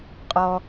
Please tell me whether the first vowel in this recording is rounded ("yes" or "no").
yes